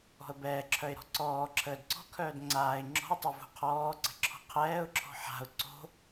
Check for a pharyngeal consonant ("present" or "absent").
present